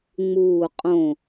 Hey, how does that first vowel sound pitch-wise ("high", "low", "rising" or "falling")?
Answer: low